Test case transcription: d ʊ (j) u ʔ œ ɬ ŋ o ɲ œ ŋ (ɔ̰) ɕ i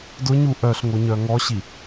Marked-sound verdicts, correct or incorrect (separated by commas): incorrect, incorrect